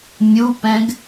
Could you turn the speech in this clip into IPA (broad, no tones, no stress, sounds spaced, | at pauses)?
mʲ u p ɛ̃ ɡ